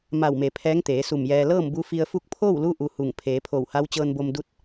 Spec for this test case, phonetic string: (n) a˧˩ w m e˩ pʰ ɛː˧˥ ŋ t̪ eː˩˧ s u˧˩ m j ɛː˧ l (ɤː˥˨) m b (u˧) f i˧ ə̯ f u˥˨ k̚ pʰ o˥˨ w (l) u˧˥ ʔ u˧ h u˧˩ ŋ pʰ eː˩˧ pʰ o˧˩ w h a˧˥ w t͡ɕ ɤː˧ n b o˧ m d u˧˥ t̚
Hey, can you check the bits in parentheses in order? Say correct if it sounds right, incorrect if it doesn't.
incorrect: m, correct, correct, correct

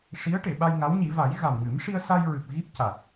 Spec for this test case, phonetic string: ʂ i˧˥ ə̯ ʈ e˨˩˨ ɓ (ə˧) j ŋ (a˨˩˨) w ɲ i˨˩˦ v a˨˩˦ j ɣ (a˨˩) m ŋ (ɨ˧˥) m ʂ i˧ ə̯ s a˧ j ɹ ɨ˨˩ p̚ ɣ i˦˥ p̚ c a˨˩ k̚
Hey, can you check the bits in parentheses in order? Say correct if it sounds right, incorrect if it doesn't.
incorrect: a˧, incorrect: a˧˥, correct, incorrect: ɨ˨˩˦

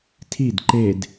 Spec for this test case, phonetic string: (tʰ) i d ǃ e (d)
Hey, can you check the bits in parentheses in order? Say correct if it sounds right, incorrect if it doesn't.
correct, correct

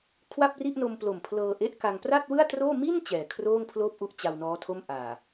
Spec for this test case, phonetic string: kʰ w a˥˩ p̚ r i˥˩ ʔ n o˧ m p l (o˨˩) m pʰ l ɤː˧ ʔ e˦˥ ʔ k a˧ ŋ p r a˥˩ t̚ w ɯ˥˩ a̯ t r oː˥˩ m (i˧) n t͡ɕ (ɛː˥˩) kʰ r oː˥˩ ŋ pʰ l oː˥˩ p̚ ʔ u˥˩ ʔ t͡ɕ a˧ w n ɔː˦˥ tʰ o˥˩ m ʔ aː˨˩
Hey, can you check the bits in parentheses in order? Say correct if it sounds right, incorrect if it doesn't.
correct, incorrect: i˥˩, incorrect: ɛː˨˩

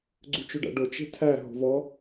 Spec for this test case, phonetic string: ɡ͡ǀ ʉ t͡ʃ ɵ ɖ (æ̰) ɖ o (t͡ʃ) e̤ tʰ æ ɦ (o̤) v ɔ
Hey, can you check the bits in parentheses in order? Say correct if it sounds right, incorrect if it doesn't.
correct, correct, correct

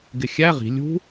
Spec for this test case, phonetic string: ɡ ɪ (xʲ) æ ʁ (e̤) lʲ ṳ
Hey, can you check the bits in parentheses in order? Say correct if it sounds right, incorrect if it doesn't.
correct, incorrect: i̤

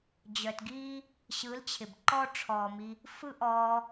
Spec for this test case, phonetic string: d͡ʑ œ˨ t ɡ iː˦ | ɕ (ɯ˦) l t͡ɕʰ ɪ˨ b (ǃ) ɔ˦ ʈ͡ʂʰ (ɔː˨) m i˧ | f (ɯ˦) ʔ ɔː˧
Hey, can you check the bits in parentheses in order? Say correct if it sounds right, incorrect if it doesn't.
incorrect: ɯ˨˦, correct, correct, correct

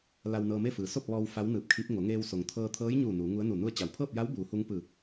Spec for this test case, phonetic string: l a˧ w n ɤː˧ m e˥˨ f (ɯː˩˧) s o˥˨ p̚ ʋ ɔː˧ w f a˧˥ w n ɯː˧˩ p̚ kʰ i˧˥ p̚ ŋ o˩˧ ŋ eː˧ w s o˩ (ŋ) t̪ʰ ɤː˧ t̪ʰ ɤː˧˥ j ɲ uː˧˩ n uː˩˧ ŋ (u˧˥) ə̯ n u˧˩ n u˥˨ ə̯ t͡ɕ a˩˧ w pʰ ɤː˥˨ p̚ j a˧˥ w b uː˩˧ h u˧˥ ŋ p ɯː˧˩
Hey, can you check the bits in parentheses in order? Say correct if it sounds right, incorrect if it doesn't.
incorrect: ɯː˩, correct, correct

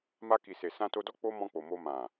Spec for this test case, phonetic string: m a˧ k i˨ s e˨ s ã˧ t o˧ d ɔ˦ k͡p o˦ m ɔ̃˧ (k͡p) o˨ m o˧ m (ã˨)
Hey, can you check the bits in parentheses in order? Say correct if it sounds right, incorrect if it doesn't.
correct, correct

